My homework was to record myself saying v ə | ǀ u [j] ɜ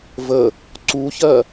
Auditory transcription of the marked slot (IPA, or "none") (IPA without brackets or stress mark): ç